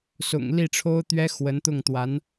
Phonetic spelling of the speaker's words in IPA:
s ʊ̰˨˩ ŋ l i˥˩ ʈ͡ʂʰ o˥ ʊ̯ t̪ ɥ ɛ˥ x w ə˧˥ n t̪ ʊ˥˩ ŋ t̪ w a˧˥ n

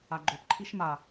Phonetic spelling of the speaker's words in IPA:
a ɡ͡ǃ o p ǃʰ i ʃ m a

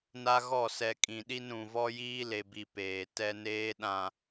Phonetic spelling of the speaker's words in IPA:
n a˦ ɣ ɔ˦˨ s ɛ˨ kʼ ĩ˨ ɗ i˦ n ɾ ũ˨ v ɔ˦ j iː˦ l e˨ b i˨ p eː˨ t ɛ˦ n eː˦ ɗ ã˨

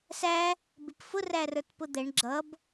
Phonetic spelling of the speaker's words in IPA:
s æ | b ɪ p f ʊ r æ r ə˞ t p ʊ d̪ ɛ ɳ ɡ͡ǁ ʌ b

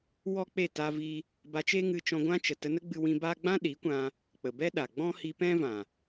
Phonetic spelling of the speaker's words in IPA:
w ɔ˦ k͡p e˦˨ t a˦ v i˦ | b a˧ t͡ʃ e˦ ŋ ɨ˧ t͡ʃ ɔ̃˧ ɡʷ ã˦ t͡ʃ ə˨ t ə˧ n ə˦ ɡ͡b ɨ˧ w ĩ˧ b aː˦ ɡ͡b ã˦ ɗ i˨˦ kʷ ã˧ | k͡p ə˨ b ɛ˦ ɗ a˨ ɡ͡b ɔ̃˦ h i˧ p ɛ̃˦ v ã˨

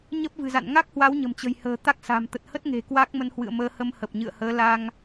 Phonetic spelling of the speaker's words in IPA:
ɲ ə˦˥ p̚ v ɨ̤˨˩ z a̰˧˨ n ŋ a˦˥ k̚ h w a˨˦ w ɲ ə̤˨˩ m t͡ɕ ə̤˨˩ j h ə̤ː˨˩ t̪ a˦˥ k̚ s a̤˨˩ m t̪ ə˨˩ t̚ h ə˦˥ t̚ ŋ e̤˨˩ k w a˦˥ k̚ m ə˧ n h w ɨ̰˧˨ ə̯ m əː˧ h ə˧ m h ə˨˩ p̚ ɲ ɨ̰˧˨ ə̯ h əː˨˦ l a˧ ŋ

